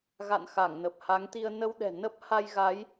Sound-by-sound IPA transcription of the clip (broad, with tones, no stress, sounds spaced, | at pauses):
ɣ a̰˧˨ n x a˧˩ ŋ n ə˨˩ p̚ h a˨˦ ŋ t̪ i˧ ə̯ n ə˧ w ɗ ɛ̤˨˩ n ə˦˥ p̚ h a˧ j ɣ a˨˦ j